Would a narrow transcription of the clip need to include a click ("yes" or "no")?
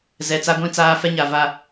no